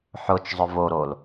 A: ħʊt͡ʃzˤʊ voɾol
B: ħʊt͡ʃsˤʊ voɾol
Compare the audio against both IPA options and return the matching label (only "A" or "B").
A